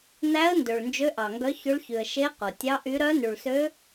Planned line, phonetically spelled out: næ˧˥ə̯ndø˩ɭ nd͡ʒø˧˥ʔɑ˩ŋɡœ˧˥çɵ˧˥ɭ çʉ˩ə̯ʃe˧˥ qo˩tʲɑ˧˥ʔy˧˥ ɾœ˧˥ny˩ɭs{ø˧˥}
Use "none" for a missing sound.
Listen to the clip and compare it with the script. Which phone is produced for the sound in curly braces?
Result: ø˧˥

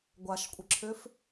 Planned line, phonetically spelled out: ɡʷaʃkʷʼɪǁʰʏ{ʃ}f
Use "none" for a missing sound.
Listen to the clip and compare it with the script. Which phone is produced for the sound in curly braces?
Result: none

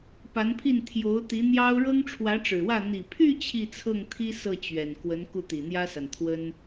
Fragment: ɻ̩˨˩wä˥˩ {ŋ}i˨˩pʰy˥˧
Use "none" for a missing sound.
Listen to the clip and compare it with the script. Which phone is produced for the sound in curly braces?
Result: n̪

